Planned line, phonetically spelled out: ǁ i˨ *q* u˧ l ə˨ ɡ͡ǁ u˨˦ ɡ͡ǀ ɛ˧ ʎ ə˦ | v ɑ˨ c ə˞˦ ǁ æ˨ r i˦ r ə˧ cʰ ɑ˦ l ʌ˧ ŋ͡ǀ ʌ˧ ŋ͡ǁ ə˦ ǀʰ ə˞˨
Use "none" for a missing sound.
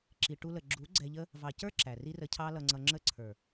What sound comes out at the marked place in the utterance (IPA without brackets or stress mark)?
ʈ